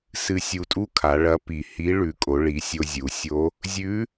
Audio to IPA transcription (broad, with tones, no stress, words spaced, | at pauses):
sɨ˧ sʲu˧tʼu˥kʰa˩˧ ɭɐ˧˥ pi˩hi˧˥ ɭʉ˩˧kʼo˩˧ ɭi˩˧sʲo˧zʲu˩˧sʲo˧˥ | zʲʉ˧˥